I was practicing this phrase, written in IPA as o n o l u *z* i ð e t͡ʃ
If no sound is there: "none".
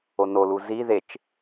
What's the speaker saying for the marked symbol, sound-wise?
z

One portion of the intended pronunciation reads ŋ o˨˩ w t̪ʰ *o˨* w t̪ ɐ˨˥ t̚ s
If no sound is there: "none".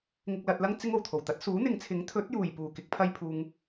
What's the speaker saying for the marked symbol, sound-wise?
o˨˩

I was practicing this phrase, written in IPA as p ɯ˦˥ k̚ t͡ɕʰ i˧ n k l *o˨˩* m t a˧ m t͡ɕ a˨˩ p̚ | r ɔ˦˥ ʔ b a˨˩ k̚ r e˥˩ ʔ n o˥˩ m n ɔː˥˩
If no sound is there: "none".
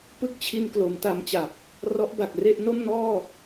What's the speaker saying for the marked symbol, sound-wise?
o˩˦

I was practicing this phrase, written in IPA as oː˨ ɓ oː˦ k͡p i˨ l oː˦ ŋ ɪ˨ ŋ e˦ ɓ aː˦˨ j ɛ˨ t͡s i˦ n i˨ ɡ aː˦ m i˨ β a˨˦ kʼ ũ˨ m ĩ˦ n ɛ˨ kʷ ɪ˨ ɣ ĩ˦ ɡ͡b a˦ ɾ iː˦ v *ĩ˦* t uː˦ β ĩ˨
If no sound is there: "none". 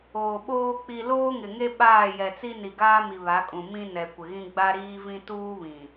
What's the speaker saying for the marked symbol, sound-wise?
ĩ˦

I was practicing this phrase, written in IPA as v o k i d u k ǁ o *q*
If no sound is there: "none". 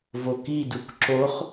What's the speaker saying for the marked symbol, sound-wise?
χ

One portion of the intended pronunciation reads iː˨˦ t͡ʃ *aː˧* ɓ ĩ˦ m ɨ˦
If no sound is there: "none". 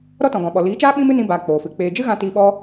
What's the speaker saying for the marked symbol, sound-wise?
aː˦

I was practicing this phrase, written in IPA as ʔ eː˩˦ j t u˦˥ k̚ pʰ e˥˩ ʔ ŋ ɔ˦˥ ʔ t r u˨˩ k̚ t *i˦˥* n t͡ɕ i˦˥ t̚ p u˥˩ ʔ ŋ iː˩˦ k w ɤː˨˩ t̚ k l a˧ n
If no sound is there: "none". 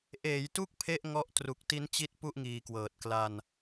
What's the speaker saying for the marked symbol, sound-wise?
i˦˥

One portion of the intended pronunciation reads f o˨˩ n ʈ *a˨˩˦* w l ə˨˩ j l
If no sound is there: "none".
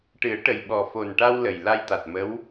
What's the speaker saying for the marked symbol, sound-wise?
a˧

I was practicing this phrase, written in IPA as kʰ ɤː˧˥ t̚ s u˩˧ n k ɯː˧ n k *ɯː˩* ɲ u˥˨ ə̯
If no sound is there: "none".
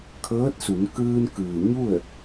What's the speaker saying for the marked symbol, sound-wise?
ɯː˩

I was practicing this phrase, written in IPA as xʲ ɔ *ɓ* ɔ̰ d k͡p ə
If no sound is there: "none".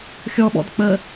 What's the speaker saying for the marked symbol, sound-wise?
ɓ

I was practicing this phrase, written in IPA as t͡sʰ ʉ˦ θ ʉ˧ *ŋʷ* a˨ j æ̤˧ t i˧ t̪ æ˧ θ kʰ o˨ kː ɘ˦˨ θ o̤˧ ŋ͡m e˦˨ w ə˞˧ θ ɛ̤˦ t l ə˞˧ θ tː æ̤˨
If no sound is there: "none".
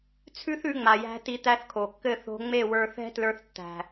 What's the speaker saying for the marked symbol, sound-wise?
ŋ͡m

